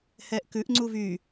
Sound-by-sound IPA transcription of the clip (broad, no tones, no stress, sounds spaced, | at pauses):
h ɛː ʔ k ʉ ʔ ŋ͡ǀ u v y